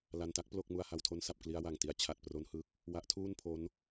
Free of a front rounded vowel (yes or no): yes